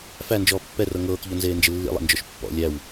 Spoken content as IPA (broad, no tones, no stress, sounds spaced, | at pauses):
f æ n d͡ʒ ɔː pː ɛ r ɤ ŋ ɤː k ʎ ɔ n z eː n d͡ʒ ɪ lː ḭ lˠ ḛ n d͡ʒ ɔ ʃ pː ɔ̰ lʲ æ w